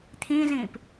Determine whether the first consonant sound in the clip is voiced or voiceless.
voiceless